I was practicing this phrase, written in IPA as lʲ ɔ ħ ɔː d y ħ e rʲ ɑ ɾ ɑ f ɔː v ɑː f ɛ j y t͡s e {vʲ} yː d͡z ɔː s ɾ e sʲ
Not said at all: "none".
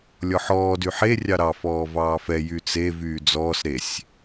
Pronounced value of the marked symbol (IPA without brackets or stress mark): v